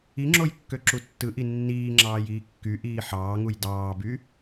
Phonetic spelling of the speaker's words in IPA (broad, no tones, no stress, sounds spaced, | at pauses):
i ŋ͡ǁ o j kː ø ǁ u tː ɯ ʔ i nː iː ŋ͡ǁ ɑː j iː kː y ʔ iː ħ ɑː ŋ u j d ɑː b y